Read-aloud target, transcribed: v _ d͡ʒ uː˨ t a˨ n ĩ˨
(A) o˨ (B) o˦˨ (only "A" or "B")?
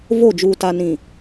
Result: B